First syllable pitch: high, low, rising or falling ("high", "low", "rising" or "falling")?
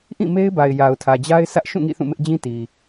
falling